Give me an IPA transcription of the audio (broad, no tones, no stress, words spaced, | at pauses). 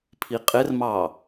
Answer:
pʰiqʼɪrmɑ